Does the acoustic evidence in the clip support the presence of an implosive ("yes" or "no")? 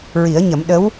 yes